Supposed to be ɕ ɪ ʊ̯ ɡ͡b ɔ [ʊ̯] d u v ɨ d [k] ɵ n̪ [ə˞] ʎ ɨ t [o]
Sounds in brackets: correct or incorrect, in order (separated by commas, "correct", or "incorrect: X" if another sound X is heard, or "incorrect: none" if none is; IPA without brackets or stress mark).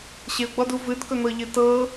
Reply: incorrect: none, correct, incorrect: ɤ, incorrect: ɤ